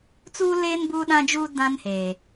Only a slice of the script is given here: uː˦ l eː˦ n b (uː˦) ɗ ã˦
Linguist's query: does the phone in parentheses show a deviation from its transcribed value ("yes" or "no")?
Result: no